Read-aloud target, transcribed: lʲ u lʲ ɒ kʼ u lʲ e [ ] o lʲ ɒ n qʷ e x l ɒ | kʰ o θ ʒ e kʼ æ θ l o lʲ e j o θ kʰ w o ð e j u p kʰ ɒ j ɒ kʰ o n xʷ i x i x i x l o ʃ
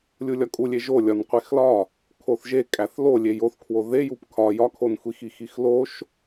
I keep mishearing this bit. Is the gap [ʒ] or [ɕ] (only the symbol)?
ʒ